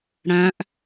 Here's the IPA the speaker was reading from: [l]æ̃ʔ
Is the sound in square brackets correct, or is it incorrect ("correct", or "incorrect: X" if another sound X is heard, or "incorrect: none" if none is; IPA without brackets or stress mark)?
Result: incorrect: ɽ